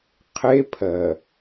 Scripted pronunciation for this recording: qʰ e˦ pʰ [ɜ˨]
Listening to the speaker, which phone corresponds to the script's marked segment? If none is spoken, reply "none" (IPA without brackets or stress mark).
ɜ˨